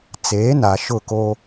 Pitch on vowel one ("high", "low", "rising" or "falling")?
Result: rising